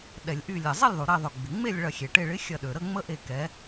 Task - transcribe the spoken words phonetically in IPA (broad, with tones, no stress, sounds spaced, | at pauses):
ɗ ɛ˩ lʲ ʔ y˧˩ lʲ ɛ˩ zˤ e˥˨ lʲ ðˤ u˩ ɾ e˧˩ ðˤ ø˩ ɡ͡b ɪ˩ ŋ͡m e˥˨ lʲ ɭ ɐ˧˩ xʲ e˩ ʈ e˧˩ ɭ ɪ˨˥ xʲ ɐ˧˩ ɗ ø˩ ɾ ə˥˨ ŋ͡m ə˦ ʔ e˧˩ k ɛ˨˥